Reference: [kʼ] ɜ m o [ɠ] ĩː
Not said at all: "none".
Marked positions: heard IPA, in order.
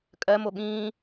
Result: kʼ, ɠ

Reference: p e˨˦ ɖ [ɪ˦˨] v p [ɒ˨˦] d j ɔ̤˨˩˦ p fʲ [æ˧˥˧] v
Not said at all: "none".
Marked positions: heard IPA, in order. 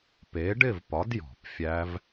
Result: ɪ˦˨, ɒ˨˦, æ˦˥

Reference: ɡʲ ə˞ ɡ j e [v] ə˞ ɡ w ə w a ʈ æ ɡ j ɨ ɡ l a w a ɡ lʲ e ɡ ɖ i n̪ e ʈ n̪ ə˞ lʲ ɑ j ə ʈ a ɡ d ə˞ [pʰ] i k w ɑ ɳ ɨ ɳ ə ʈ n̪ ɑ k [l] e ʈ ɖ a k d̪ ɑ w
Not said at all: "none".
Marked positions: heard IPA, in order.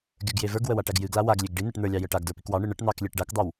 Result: v, p, lʲ

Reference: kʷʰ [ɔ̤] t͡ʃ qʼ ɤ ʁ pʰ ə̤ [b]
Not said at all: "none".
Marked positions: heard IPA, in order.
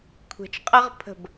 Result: ə̤, b

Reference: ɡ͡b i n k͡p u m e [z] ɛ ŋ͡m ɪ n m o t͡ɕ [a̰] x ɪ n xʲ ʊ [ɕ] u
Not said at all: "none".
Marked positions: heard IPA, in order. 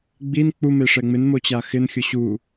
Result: ʂ, a, ɕ

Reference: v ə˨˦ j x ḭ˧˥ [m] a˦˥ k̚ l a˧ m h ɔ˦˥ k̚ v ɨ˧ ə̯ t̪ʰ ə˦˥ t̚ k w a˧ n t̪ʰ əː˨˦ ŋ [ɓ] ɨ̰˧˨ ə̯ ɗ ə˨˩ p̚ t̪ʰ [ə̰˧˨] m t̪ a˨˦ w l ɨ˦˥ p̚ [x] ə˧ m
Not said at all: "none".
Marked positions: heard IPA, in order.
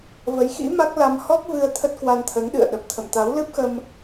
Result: m, ɗ, ə̰˧˨, x

